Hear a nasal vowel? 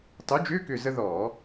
no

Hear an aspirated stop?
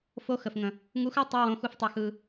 no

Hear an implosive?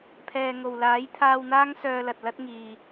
no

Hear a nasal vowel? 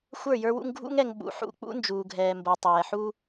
no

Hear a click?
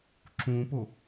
yes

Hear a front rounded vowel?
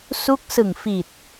no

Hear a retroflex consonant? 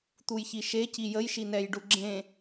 yes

